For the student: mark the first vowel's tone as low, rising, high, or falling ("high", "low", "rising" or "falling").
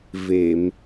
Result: low